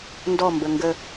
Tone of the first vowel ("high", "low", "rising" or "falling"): falling